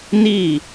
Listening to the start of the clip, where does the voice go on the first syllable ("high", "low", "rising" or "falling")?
falling